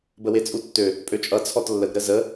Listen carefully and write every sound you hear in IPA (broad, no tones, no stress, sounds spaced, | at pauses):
b ə w e t͡sʼ u tː ø | pʼ ø t͡ʃʼ ʌ t͡sʰ ɔ t lː ə ɡ ɾ ə z ə